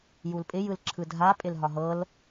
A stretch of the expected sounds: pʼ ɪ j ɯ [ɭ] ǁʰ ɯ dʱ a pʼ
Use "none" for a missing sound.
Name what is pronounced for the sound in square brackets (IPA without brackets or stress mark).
l